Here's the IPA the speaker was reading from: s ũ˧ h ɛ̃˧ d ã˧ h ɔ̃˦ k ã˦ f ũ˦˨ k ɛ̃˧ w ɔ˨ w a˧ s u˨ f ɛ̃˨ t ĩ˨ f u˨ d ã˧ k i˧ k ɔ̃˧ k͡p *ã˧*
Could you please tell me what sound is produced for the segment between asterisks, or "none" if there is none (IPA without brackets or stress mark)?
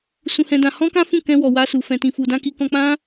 ã˦